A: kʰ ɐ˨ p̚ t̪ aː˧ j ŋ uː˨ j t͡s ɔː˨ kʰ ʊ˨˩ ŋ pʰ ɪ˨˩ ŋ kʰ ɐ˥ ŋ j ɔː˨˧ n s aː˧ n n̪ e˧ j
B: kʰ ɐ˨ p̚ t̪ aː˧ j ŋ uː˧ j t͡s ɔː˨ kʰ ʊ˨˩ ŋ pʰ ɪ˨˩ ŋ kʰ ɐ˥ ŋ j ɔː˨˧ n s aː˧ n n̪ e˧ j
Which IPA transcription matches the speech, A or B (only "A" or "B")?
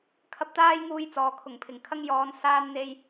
A